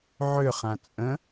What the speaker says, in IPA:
ʕʏχã t͡sʼə̃

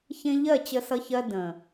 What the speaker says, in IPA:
çẽ˦ ʎɜ˦˨t͡ɕə˧sʌ˧çɜ˧ də̃˨

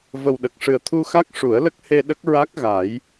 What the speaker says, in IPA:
və˨˩wɗə˨˩k̚ʂɨ˨˩ə̯ t̪ʰu˧xa˦˥k̚ ʂu˨˩˦ə̯lə˦˥k̚he˧ ɗə˦˥k̚ɹa˦˥k̚ɣa˨˩˦j

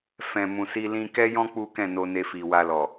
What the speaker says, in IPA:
fɛ̃˨ mũ˨si˧ lĩ˧kɛ˦jɔ̃˦ k͡pu˦kɛ̃˦˨no˧ ne˧fi˨wa˧lɔ˨

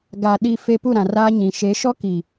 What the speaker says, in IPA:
ɡa˨ ɗi˨fe˨ pu˦˨ɾã˨raː˦ɲĩ˨ ʃe˨˦ʃɔ˦ki˨

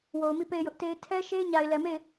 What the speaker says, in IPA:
wo˨ʊ̯mi˦˨ pe˦˨ɪ̯jʊ˦ʔte˦ɪ̯ tʰɛ˦ʃe˦ɪ̯ ɲa˨ɪ̯lɛ˨me˦˨ɪ̯

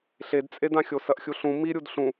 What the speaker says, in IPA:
ɬedt͡sʼedãxʲo sɐʔxʲuɬũ miɾʲud ɬũ

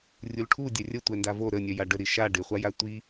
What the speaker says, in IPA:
rʲulʈʰu dʲœrʲə tʷɛndavo ɾənʲœ jaɖə ɾiʃa ɖɪχʷaja tʷi

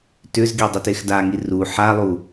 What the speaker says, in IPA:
tʏzɡidˤʏ texdaŋi ru ħalˠu

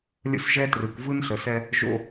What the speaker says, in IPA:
lʲə̰˦sʒɛ˦trɯ˨k vɯ˦nɬə˨sɛ˦ | ʒo̰˦

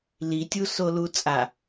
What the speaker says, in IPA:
litʲusolu t͡sʼa

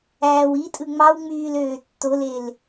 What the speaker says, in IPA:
æːwitʼɯ ŋ͡mɑwŋ͡myːl øːtːolel

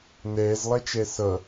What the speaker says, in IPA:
nɛːzlˠɛt͡ʃɛ sʌ

